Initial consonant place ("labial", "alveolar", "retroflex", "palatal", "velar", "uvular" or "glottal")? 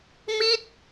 labial